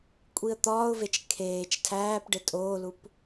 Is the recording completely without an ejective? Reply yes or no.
no